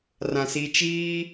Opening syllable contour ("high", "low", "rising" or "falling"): low